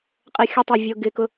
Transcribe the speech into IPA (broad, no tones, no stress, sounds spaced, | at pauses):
qʼ ɛ xʲ ʊ tˤ ɛ vʲ ʊ ɡ ɪ k ʊ